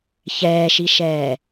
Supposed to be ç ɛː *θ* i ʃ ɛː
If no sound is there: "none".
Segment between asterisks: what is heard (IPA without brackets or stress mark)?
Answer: ʃ